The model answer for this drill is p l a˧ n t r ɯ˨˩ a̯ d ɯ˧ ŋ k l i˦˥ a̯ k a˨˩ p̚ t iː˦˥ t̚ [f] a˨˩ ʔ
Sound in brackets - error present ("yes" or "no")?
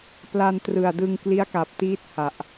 yes